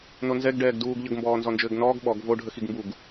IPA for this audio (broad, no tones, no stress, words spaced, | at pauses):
nonzɛɡ ɖɛːɡduːɡ ʎəɡ mbɔːnzɔnd͡ʒɘːɡnɔːɡ ɓɔɡ vo ɖʱəxiɡmbuɡ